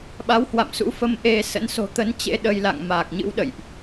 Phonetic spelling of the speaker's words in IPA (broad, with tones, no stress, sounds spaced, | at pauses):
ɓ a˨˦ w h w a̰˧˨ m s ṵ˧˥ f ə˧ m ʔ e˧ s ə̰˧˥ n s o̤˨˩ t̪ ə˨˦ n t͡ɕ ḛ˧˥ ɗ ə˧ j l a̰˧˨ ŋ m aː˨˩ k̚ ɲ ɨ̰˧˥ w ɗ ə̰˧˨ j ʔ